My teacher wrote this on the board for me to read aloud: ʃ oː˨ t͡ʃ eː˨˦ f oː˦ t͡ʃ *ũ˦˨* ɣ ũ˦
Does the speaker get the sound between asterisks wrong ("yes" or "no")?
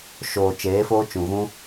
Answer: yes